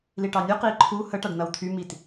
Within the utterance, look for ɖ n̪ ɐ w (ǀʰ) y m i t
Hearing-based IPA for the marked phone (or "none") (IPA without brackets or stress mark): t̪ʰ